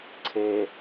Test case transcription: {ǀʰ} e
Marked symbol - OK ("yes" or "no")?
yes